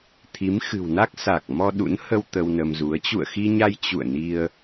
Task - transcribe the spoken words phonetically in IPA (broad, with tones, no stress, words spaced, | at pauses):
t̪ʰi˨˦mxɨ̤˨˩wna˦˥k̚ sa˨˩k̚mɔ˧ɗṵ˧˥n hə˧w t̪ə˧wnə˧mzu˨˦ə̯ t͡ɕṵ˧˨ə̯xi˧ɲa˧j t͡ɕṵ˧˨ə̯ni˧ə̯